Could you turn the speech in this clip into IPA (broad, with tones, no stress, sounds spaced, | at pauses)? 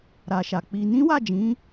ɾ a˨ ʃ a˨ k͡p i˧ n ĩ˦ w a˦˨ d͡ʒ ĩ˨˦